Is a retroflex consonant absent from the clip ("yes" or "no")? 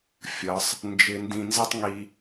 yes